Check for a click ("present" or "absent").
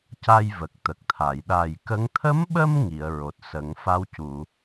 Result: absent